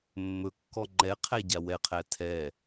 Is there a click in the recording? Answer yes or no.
yes